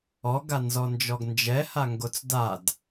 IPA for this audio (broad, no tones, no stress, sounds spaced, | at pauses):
ɔ ɡ a n z ɔ n d͡ʒ ɔ ɡ n d͡ʒ ɛ h a ŋ ɡ o t͡s d a d